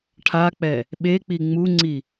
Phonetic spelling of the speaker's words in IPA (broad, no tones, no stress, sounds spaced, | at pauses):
ʈʰ a k͡p ɛ | ɓ e k͡p i ŋ͡m u ŋ͡ǀ i